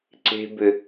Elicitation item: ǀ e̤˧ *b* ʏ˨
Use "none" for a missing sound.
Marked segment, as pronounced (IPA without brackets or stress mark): b